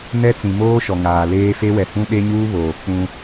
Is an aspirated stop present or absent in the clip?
absent